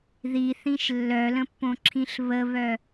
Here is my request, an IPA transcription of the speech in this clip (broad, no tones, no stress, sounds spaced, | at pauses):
ð i θ ĩ ʃ lː œ l ə̃ pː õ ǁʰ ĩ ɬ β ə β œ